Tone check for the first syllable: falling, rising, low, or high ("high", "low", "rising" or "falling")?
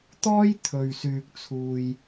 high